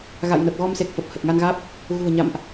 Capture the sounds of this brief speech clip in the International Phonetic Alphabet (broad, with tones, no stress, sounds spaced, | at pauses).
ɣ a̰˧˨ j n ə˨˩ p̚ ɣ ɔ˧ m s e˨˩ k̚ f ə˨˩ p̚ h ə˨˩ t̚ ŋ a˧ n ɣ aː˦˥ p̚ | ɣ ṳ˨˩ ə̯ ɲ a̰˧˨ m ʔ